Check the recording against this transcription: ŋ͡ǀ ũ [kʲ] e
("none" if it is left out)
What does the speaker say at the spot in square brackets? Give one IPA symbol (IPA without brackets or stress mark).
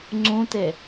t